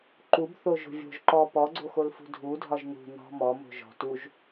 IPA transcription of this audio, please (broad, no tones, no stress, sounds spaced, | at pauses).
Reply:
ǃ u b θ o ʒ o̤ vʲ o̤ ʒ ǃ ɔ p ɔ ɡ͡ǀ o x o l f ṳ dʱ u dʱ ɒ ʒ n ṳ n ɔ̤ m ɔ m o̤ ʒ ɔ̤ t u ʒ